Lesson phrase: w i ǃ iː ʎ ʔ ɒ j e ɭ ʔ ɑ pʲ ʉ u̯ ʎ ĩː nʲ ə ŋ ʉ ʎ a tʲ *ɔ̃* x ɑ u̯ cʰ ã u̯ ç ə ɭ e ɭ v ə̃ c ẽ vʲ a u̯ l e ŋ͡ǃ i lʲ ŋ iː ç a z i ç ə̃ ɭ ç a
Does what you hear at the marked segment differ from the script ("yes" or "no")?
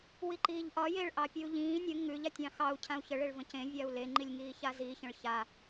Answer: yes